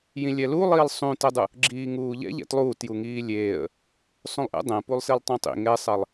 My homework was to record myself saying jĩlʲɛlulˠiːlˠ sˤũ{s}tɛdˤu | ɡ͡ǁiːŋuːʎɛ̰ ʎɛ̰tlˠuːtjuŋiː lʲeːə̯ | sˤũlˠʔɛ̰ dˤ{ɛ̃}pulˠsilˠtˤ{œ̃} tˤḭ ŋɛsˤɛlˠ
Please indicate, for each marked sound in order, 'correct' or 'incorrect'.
incorrect, correct, incorrect

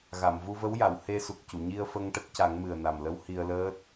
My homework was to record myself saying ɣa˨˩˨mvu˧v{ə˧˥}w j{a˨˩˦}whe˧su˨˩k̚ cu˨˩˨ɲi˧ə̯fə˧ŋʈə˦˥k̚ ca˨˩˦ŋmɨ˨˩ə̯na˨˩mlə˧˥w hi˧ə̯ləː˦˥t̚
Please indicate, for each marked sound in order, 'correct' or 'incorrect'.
correct, incorrect

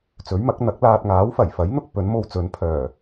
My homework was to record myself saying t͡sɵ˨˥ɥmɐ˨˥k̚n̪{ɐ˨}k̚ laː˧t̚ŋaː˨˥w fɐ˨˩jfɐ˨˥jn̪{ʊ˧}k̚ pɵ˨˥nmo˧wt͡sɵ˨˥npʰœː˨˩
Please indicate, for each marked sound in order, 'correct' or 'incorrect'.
incorrect, correct

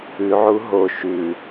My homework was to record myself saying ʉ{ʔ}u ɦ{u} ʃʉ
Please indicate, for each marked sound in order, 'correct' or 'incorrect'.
incorrect, incorrect

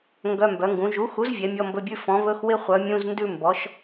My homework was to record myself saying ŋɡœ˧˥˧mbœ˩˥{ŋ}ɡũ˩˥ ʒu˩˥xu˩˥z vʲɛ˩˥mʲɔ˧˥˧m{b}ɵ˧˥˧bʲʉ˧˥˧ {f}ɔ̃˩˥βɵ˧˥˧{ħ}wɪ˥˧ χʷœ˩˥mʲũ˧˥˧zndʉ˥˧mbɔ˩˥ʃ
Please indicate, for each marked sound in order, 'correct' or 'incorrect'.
correct, correct, correct, incorrect

